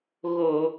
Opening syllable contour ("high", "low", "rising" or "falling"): low